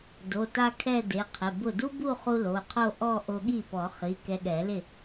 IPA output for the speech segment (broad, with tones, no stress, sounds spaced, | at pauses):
d o˩˧˩ t a˥˧ kʰ ɛ˥˧ d e˩˧˩ qʰ ɪ˩˧˩ b ʊ˥˩ d u˥ b u˥˧ χ u˧ l o˩˧˩ qʰ o˥˧ ʔ ɔ˥˧ ʔ o˧ ɠ i˥˩ p ɔ˨˩˦ χ i˩˧˩ k ɛ˧ ɠ ɛ˨˩˦ l ɪ˥˩